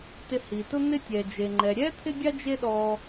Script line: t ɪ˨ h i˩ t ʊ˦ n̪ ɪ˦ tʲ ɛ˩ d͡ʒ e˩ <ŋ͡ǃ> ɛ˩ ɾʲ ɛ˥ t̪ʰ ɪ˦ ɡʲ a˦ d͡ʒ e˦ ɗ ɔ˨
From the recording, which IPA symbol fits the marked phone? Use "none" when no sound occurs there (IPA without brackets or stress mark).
ŋ͡ǃ